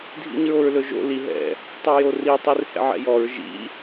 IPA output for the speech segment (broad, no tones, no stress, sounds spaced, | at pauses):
dʱ ḭ ɲ ɹ o ɹ l ɵ ʒ o̰ l i ɦ ɛ̰ | tˤ o j o r i tˤ i r h ɛ̰ ʕ ɛ̰ j ɔ ɹ ʒ ḭ